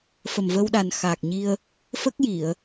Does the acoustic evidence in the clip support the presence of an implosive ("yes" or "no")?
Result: yes